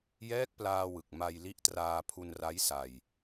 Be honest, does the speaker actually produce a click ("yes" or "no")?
no